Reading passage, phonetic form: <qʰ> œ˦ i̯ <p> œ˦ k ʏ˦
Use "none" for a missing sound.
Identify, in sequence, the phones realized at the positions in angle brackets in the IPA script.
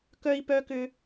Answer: k, p

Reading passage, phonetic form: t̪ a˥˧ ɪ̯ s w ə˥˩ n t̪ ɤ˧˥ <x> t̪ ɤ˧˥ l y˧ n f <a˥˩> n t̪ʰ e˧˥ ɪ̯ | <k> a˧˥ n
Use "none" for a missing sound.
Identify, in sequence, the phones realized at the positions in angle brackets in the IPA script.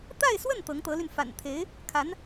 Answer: ŋ, a̰˨˩, kʰ

